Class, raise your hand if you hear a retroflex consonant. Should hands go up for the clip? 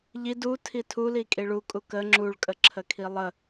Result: yes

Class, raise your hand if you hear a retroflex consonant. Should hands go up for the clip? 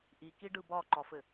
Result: yes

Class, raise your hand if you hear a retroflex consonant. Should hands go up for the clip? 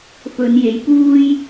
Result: no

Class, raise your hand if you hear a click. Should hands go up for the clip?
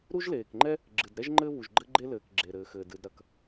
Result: yes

